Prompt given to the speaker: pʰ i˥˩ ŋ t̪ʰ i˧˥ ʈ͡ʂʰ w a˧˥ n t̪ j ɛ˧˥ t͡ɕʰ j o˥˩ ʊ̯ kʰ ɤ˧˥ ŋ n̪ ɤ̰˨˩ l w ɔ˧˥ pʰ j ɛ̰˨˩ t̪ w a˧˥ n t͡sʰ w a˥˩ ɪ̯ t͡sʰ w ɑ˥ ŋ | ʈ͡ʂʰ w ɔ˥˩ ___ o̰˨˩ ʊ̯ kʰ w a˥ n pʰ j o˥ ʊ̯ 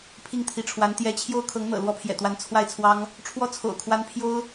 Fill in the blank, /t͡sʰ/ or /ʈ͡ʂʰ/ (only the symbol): t͡sʰ